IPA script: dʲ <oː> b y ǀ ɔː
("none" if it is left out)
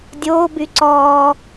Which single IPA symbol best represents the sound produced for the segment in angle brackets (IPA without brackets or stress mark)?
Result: oː